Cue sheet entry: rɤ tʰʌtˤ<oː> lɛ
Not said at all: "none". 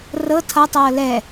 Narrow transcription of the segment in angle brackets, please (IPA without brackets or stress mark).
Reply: ɤː